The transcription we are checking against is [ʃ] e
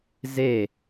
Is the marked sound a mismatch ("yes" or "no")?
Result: yes